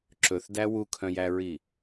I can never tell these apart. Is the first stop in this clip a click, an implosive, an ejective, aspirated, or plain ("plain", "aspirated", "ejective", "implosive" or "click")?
click